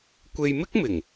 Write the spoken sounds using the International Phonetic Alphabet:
kʷe˧jmɪ˥k̚mɪ˨˩ŋ

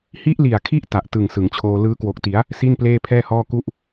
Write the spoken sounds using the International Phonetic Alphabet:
hi˦˥ʔli˨˩a̯kʰi˦˥ʔ ta˨˩ʔtɯ˨˩ŋ sɯ˩˦ŋt͡ɕʰoː˧ lɯː˦˥kwo˨˩k̚ti˩˦a̯ | si˥˩n pleː˥˩ pʰɛː˥˩hɔː˥˩ ku˥˩ʔ

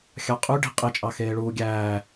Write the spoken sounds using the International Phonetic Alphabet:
xʲɑqʼy ɖi̤ qʼet͡ʃʼɑ xeːɭuːɡʲæː

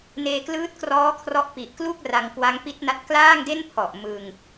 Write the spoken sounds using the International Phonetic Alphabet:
neː˧klɯː˦˥t̚krɔː˦˥kʰrɔ˦˥ʔ pi˨˩ʔklu˥˩k̚ ra˧ŋkwa˦˥ŋpi˦˥t̚na˦˥t̚ klaː˥˩ŋde˥˩n pʰɔ˨˩ʔmɯ˧ŋ

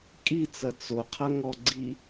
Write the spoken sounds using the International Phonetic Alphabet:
kʼit͡sɐ t͡soqʰɐ ŋɔɡ͡ǀi

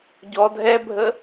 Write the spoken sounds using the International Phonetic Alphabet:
ɟɔ dʱɛbʱə

